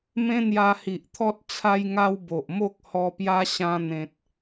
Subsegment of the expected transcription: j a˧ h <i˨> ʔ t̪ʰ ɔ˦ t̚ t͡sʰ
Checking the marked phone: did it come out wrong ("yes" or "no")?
no